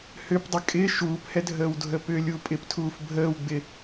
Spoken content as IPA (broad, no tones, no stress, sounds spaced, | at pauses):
h ʏ p dˤ ɪ kʼ ɪ ʃ uː p h ɛ dʱ əː w dʱ ə p ʏ lʲ u pʼ ɪ p tʰ uː f bʱ əː w ɡ͡b ɪ